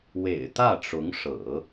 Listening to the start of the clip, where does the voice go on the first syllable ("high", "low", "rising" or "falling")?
low